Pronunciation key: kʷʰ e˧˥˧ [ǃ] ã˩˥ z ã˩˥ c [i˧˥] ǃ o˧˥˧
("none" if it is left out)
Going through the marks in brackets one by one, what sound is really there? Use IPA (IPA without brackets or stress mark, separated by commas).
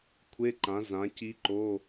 ǃ, i˧˥